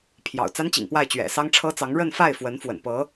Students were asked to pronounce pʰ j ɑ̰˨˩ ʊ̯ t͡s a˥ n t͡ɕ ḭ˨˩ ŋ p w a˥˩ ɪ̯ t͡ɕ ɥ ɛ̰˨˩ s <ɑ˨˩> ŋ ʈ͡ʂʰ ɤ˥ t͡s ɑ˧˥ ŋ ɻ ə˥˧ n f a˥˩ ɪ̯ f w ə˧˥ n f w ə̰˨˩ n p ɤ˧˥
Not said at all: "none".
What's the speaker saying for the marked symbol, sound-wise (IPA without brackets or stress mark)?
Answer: ɑ˥